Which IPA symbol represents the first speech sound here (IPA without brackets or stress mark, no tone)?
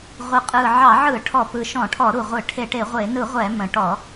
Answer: ʁʷ